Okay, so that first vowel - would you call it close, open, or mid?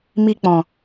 close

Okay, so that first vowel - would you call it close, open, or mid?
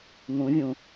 close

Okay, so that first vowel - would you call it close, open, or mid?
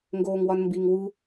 mid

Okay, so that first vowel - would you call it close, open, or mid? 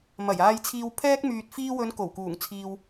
open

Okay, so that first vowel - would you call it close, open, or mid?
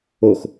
mid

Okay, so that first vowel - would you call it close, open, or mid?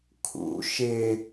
close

